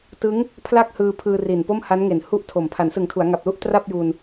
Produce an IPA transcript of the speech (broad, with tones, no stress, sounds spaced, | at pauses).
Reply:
t ɯ˦˥ ŋ | pʰ l a˥˩ k̚ h ɯː˧ pʰ ɯː˧ r i˨˩ n p o˥˩ m h a˦˥ n ŋ e˨˩ n h u˥˩ ʔ tʰ o˨˩ m pʰ a˩˦ n s ɯ˨˩ ŋ tʰ u˩˦ a̯ ŋ a˨˩ p̚ l u˥˩ ʔ t r a˥˩ p̚ j u˧ n